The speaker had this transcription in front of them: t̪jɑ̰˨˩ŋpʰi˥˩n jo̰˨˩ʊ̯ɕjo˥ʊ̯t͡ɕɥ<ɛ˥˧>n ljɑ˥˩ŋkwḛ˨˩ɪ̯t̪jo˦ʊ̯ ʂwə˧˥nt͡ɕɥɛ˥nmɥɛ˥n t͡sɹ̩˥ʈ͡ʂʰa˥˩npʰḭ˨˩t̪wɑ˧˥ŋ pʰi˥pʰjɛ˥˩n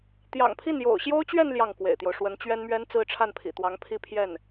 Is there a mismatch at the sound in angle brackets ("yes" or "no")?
no